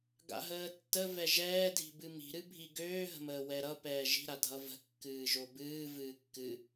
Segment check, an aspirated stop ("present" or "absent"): absent